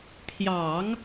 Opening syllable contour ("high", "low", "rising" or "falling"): low